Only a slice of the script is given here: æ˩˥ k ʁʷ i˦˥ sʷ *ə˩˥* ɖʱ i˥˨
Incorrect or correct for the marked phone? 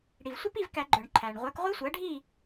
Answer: incorrect: æ˩˥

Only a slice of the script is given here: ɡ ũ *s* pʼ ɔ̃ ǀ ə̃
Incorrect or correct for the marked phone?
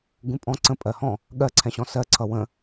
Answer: incorrect: none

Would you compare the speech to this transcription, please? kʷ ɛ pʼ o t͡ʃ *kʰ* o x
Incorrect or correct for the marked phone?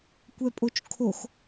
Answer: correct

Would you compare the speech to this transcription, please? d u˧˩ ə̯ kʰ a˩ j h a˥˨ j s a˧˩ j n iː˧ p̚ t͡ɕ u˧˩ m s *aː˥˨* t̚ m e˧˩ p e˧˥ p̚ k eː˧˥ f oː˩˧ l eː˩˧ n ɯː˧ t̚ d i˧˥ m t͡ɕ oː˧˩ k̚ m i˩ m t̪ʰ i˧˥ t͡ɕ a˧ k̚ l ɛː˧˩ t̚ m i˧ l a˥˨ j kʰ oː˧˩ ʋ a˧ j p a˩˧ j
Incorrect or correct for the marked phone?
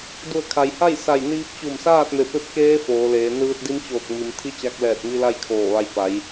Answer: correct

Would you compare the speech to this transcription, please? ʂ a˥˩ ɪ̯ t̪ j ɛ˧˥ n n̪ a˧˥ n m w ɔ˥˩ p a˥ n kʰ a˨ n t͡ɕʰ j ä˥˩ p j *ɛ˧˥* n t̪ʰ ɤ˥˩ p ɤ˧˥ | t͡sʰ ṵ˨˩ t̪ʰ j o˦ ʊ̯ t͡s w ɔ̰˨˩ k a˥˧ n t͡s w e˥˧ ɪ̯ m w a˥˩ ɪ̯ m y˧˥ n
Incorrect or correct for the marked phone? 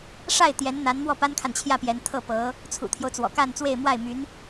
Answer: correct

